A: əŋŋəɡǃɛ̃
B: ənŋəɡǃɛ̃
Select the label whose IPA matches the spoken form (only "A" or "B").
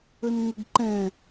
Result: B